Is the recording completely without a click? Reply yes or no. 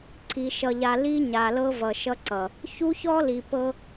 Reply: no